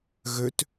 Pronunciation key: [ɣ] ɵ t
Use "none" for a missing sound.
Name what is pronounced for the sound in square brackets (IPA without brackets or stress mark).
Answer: ɣ